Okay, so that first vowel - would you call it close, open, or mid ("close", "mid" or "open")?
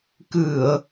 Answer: close